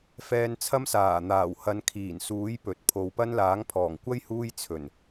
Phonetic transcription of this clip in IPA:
f ɛː˧ n t͡sʰ ɐ˥ m s aː˨˩ n̪ aː˨˩ w h ɐ˨˧ n kʰ iː˨˩ n s uː˨˥ j p ɵ˨ t̚ pʰ o˨˧ w p ɐ˥ n l aː˨˥ ŋ pʰ ɔː˨˩ ŋ kʷ ɐ˥ j h uː˥ j t͡sʰ ɵ˨˩ n

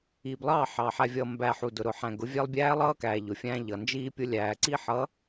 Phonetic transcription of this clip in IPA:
iː˨ b lˠ ɑː˦˨ ħ ɑː˨ ħ æ˨ vʲ ʌː˨ m b æ˨ ħ u˨ d ʊ˨ ɾ ʊ˨ ħ æ̃˨ ɡ ʊ˨˦ vʲ æ˦ lˠ bʲ æː˦ lˠ ʌː˦ k æː˨ ʎ ʊ˨ fʲ æ̃˦ ʎ ʌ˨ n d͡ʒ iː˦ pʲ ʊ˦ lʲ æː˨ ǀ i˦ ħ ʌ˨˦

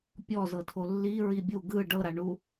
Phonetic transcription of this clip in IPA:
pʲ ɔ z ɤ tʰ o lː i ɹ i bʲ u ɡ ɯ ɖ ɤ ɾ a ɳ u

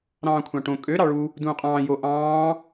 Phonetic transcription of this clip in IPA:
ɾ ɑ̃ː kʷʰ ɑ̃ ʈ õ kʼ ø ɾ ɑ ɭ u | d ũː qʼ ɑ̃ː j o ʔ ɑ̃ː

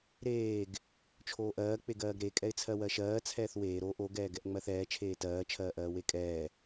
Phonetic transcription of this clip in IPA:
ɾ eː ɡ | t͡ʃʰ oː ʔ ɜː k͡p e ɡ ɜː ɡ ɾ e kʼ ɛ ɪ̯ t͡sʰ ɜ w ɜ ʃ ɜː t͡sʰ ɛː θ w eː ɾ o ʔ o ɡ ɛː ɡ ɛ ʔ ŋ͡m ɜ θ ɛː t͡ʃʰ eː t ɜː t͡ʃʰ ɜː ʔ ɜː w e kʼ ɛː

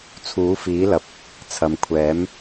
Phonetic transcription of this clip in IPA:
t͡sʰ uː˨˥ f iː˨˥ l ɐ˨ p̚ | t͡sʰ ɐ˨ m kʷʰ ɛː˨˥ m

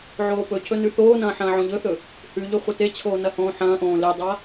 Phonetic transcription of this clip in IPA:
ʕ oː p ɵ cʰ ɵ n ʉ θ oː n ɐ̃ː ħ ɐ̃ː ʕ õ ʎ ɵ θ ɵ | h ʉ ʎ ɵ χʷ ɐ t e t͡ɕʰ oː n ɐ h õː ħ ɐ̃ː ʔ õː l e dˤ a

